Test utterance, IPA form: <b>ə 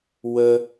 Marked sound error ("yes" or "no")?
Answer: yes